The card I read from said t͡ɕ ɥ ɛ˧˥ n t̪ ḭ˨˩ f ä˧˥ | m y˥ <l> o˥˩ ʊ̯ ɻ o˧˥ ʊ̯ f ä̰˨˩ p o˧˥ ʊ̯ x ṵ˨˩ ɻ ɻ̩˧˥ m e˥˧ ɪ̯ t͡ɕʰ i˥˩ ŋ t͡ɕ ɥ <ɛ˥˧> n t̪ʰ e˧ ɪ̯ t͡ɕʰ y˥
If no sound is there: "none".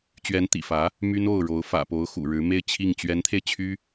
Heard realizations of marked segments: n, ɛ˧˥

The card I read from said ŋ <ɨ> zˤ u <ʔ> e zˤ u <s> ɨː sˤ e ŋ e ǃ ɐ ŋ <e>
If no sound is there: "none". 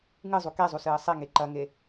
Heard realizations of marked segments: ɨ, k, s, e

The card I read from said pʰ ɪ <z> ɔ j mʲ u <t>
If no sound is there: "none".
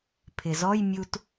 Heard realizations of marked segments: z, t

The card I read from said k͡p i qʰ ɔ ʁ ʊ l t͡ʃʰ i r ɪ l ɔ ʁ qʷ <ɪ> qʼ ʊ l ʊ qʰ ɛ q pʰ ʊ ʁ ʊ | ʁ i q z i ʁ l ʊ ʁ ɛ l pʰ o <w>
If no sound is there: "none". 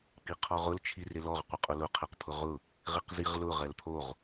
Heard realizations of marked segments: ɪ, ʁ

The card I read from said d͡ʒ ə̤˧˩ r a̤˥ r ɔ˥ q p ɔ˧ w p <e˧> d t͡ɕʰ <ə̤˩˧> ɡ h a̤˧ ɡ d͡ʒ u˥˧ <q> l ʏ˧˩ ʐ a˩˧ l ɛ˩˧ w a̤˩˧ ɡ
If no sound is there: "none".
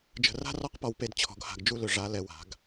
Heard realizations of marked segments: e˧, ɔ̤˩˧, none

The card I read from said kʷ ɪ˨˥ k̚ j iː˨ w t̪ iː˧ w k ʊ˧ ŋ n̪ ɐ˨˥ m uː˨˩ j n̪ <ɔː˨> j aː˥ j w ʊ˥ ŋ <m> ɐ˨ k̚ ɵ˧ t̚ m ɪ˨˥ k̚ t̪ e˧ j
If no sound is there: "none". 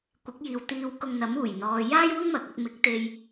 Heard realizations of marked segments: ɔː˨, m

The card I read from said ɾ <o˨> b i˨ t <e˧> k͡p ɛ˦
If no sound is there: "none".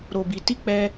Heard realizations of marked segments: o˨, i˧

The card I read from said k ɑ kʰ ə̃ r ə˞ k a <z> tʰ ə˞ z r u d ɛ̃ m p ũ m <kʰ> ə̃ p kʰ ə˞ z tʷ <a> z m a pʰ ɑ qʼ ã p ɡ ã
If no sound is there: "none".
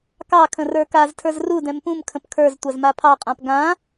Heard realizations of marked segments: z, kʰ, a

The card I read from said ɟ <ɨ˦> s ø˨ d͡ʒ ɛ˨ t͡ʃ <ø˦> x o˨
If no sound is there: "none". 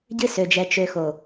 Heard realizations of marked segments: ɨ˦, ø˨

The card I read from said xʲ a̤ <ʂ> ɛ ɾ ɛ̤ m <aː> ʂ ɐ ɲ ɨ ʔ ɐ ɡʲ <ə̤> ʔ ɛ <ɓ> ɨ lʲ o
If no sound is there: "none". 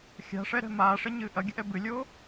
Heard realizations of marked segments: ʂ, aː, ə̤, b

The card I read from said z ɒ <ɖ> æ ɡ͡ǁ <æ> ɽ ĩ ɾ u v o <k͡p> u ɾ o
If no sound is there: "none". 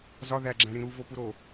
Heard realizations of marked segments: ð, æ̃, p

